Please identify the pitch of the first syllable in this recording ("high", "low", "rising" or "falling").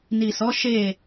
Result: low